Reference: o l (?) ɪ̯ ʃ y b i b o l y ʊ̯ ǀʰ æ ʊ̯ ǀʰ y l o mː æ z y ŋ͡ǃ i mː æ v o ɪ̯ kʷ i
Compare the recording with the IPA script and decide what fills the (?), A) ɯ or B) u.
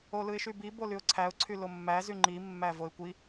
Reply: A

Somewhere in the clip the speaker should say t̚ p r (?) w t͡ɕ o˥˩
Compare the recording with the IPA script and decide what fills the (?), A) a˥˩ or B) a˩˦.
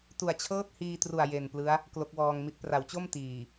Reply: B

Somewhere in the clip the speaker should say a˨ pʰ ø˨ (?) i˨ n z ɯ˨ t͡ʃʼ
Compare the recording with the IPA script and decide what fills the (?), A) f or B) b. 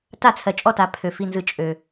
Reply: A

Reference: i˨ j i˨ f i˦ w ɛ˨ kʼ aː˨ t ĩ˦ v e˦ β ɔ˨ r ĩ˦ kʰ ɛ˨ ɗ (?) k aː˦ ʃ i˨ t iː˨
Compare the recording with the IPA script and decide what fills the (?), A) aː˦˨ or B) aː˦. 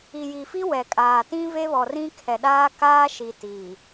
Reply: B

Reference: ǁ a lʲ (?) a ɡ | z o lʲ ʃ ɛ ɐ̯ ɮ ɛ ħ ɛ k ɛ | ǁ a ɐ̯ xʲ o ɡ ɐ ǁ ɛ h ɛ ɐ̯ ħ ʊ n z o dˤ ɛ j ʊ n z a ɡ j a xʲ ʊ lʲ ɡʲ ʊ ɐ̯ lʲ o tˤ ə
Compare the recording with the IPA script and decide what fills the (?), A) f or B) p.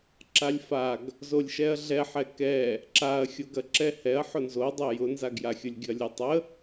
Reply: A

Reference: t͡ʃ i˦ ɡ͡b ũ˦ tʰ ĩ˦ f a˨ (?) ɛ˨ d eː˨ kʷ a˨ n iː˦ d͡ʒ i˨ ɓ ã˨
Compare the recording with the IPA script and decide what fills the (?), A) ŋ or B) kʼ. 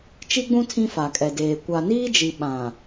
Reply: B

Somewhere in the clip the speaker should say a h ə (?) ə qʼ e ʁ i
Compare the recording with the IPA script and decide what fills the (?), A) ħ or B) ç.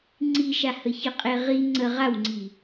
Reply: B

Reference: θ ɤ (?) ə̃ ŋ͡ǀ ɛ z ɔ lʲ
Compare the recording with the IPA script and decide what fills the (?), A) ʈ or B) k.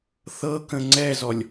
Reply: B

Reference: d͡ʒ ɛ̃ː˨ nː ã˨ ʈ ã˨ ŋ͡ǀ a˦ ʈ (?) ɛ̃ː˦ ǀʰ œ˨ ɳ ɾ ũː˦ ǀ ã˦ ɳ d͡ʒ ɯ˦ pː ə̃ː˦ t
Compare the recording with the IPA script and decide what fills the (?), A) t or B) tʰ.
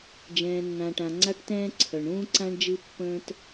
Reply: A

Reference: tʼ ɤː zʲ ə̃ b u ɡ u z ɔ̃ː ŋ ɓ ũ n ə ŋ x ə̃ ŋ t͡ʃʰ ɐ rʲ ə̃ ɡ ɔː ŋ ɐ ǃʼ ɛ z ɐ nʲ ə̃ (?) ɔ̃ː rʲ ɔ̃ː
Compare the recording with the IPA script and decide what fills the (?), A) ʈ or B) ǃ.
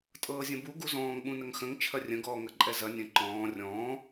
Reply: B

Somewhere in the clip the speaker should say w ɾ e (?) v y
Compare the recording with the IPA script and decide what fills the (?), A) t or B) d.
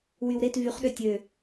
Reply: A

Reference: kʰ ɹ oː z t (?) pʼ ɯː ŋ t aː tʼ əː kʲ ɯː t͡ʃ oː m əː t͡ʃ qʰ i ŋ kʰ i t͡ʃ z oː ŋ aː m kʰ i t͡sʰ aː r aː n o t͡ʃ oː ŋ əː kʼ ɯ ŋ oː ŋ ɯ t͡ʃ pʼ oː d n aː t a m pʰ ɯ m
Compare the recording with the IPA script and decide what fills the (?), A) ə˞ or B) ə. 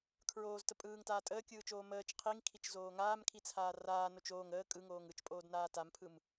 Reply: B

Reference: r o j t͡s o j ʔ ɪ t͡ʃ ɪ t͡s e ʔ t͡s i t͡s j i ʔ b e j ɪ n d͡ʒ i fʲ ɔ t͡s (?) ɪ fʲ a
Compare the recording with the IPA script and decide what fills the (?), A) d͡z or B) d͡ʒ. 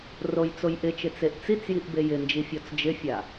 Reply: B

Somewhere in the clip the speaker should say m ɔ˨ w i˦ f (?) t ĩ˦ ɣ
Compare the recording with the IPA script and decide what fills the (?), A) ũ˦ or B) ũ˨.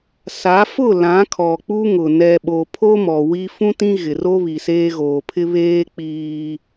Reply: A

